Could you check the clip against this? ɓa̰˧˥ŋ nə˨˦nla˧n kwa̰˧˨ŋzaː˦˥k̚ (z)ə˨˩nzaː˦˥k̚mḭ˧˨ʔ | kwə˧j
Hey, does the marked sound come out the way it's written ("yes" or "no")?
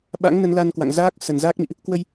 no